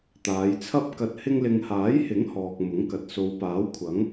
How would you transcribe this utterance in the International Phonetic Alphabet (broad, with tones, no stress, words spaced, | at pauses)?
t̪aː˨˧jt͡sʰɐ˥p̚kɐ˧t̚ hɪ˧ŋlɪ˨ŋhaː˨˥jhɪ˨˥ŋ hɔː˨k̚mʊ˨˥ŋkɐ˨t̚ so˨˧w paː˨˥wkʷʰɐ˨˥ŋ